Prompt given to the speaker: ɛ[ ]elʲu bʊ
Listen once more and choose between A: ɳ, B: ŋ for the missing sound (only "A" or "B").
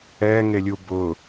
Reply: B